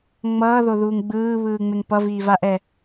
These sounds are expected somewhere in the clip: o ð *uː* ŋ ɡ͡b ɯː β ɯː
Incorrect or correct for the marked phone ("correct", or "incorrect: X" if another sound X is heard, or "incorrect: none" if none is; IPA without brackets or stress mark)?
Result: correct